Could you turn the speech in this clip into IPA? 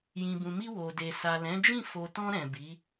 j ĩ˨ b ũ˨ m i˧ w o˨ d e˨ s a˨ l ɛ̃˨˦ d͡ʒ ĩ˦˨ f o˨ t ɔ̃˧ ɾ ɛ̃˨ b i˨˦

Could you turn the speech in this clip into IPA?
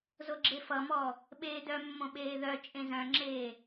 z o ɡ͡ǁ e f ʌ m ɔ | ɓ eː d œ mː õ ɓ eː ð œ t͡ʃʼ ẽ z œ̃ ŋ͡ǁ eː

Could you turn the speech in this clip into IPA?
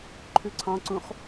ǃʰ ʉ ǀʰ ɑ̃ ǀ ũ χ

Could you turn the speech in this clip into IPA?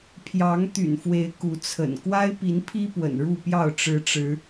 pʰ j ɑ˨˦ ŋ t̪ y̰˨˩ n f w e˨˦ ɪ̯ k u˨˦ t͡sʰ ə̰˨˩ n k w a˦ ɪ̯ p i˨˦ n pʰ i˦ p w ə̰˨˩ n ɻ u˥˨ p j ɑ˥˨ ʊ̯ ʈ͡ʂ ɻ̩˨˦ ʈ͡ʂ ɻ̩˨˦

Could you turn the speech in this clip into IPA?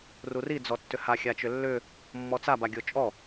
r u r i d͡z ɔ tː ʏ h a xʲ a t͡ʃ ʏ lː ʏ | mː ɔ t͡s a b a ɡʲ o t͡ʃʼ ɔ

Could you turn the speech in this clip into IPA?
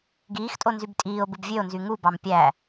ɡ iː x tʼ o n z y b tʼ iː o̯ b ɯ b vʲ ø o̯ n z y ŋ u b ɑ m pʲ æ

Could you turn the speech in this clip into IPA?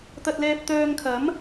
t̪ ɐ˧ t̚ l ɛː˧ p̚ t̪ œː˧ ŋ kʰ ɐ˨˥ m

